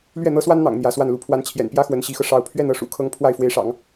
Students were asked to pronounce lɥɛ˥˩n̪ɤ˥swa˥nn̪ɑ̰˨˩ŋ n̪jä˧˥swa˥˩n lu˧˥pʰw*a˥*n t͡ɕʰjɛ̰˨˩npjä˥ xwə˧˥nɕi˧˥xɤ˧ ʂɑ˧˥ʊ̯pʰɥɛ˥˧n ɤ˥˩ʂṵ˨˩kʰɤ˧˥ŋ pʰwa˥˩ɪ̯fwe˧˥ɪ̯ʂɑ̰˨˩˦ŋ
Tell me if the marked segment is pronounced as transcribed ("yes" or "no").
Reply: no